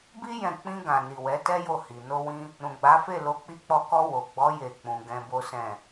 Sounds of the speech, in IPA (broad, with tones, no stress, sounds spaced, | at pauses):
b i˦ j ɛ̃˦˨ k͡p ĩ˧ ɡ ã˨ n i˨ w ɛ˨˦ t ɛ˦ j o˦˨ h i˨ n o˧ w ĩ˧ | ɾ ũ˨ ɡ͡b a˨˦ f e˦˨ l o˨˦ k͡p i˧ k͡p ɔ˧ k ɔ˧ w o˨ ɡ͡b ɔ˨˦ j e˦˨ k͡p ũ˧ ɡ ɛ̃˧ b o˦ s ɛ̃˦˨